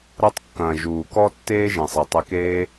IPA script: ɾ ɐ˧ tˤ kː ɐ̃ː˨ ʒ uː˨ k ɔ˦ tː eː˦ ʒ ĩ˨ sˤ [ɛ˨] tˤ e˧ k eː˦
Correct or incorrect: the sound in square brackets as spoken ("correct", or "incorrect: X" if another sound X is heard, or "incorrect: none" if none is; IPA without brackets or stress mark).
correct